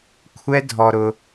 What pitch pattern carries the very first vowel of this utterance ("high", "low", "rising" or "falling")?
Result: high